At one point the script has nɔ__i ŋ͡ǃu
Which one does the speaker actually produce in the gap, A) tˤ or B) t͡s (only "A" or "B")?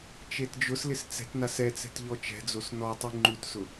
A